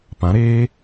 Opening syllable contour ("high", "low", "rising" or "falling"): rising